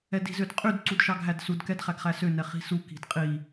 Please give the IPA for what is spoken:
ɛdi̤zødqʼyd ǀudʃɑɡɦædsud kɛdχæɡχæsø nɛχi̤su ki̤dqʼi

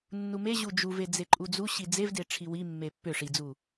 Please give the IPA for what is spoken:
nːumeʑu d͡ʒuve d͡zeǃʼud͡zuɕi d͡zevde ʈ͡ʂʰiwimːe pːʏ ʂid͡zu

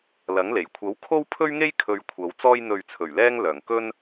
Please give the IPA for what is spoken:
lɐ˨˥ŋle˨˩j kʷʰɐ˨˥w kʰo˥wpʰɵ˥ɥŋe˥j kʰɵ˧ɥ kʷʰɐ˨˧w t͡sɔː˧jn̪ɵ˨ɥt͡sʰɵ˨˩ɥlɛː˧ŋ lœː˨˩ŋkɵ˥n

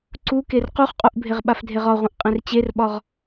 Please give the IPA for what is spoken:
ǀuker quχqʼuʔbʱeʁ ɓafdʱeʁɒʁʷẽʔ qʼẽrt͡ɕerɓɒʁ

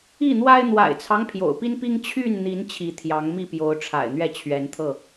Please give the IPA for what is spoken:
i˥˨n̪wa˦ɪ̯ n̪wa̰˨˩ɪ̯t͡sʰɑ˦ŋ pʰjo̰˨˩ʊ̯pi˦npi˦ŋ t͡ɕʰy˥˨nn̪i˨˦n t͡ɕʰi˨˦t̪ʰjɑ˨˦ŋmi˥˨ pjo˨˦ʊ̯ʈ͡ʂʰa̰˨˩ɪ̯n̪ɥɛ˥˨ t͡ɕʰɥɛ˨˦nt̪ʰɤ˥˨

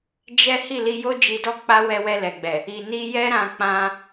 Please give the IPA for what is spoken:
d͡ʒɛ˦ hi˦˨li˧ jo˦d͡ʒi˧dɔ˦ k͡pa˦ wɛ˧wɛ˧lɛ˨ɡ͡bɛ˨ | i˨ni˧jɛ˦ ɾã˧k͡pã˧

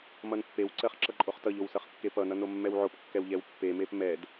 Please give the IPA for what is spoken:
mʌnpːewǀɜχ ǁʌǃʼoχtʌʎow sʌχkːepʌnʌ nomːɛwʕopkːɛw ʎɛwpːemep mɛd

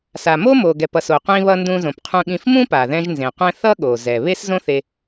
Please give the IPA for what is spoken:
sa˩ mo˥mo˩ɡɛ˩pʌ˩s o˩qʷĩ˧βʌ˧ ndũ˧zõ˩pqʰũ˧ɠĩ˧f mũ˥pa˩ðɛ̃˧ʒ nzẽ˩qʷɛ̃˧ θʌ˥ɠo˩ zɛ˩ βe˥szõ˥θe˧

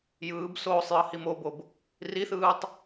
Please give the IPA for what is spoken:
jɯːbsoːsˤ jʌhimobob | riθɯːtˤ

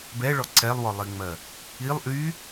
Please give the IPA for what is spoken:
bɛɭɔ ǀɛlˠwɔlˠiŋ͡mɜ | ilˠ ʔy

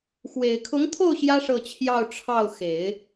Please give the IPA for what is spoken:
xwe˨˩ɪ̯kʰʊ˧˥ŋt̪ʰo˥˩ʊ̯ ɕjä˥ ʂɤ˥˧t͡ɕʰjɑ˥˧ʊ̯ ʈ͡ʂʰɑ˥˩ʊ̯xe˨˩˦ɪ̯

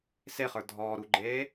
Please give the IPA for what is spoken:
seχə˞ dʱɔːɾuɡ͡ǃeː

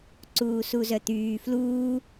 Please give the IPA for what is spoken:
ǀuːsuzœt̪yː fluː

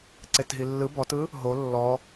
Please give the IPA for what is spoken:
ǀetɦilːɯ bɔtɯ | ɦo lːɔ

